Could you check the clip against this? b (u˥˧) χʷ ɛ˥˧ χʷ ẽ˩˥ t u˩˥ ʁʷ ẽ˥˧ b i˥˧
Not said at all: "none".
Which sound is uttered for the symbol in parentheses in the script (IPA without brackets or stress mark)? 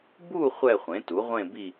u˥˧